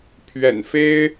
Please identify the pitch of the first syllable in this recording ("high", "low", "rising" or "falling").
low